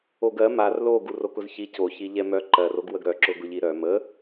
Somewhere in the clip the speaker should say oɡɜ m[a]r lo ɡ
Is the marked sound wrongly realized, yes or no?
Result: no